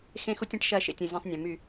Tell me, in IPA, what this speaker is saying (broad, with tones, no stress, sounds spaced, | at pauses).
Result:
x ẽ˦ x u˦ tʲ ɐ̃˦ ʈ ʃ ɐ˦˨ ʃ ḛ˨ tʲ ɐ̃˦˨ zʲ ɐ̃˦ sˤ nʲ ɐ̃˨ m y˦˨